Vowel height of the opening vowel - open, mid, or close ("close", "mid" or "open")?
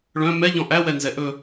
mid